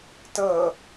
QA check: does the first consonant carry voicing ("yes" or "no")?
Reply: no